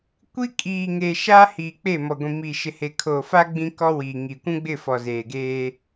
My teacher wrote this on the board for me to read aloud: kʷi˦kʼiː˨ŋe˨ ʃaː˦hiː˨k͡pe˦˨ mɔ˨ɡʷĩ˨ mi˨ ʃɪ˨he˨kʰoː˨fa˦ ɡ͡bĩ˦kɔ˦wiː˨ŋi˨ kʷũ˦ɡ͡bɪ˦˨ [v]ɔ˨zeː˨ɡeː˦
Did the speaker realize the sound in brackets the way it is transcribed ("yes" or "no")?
no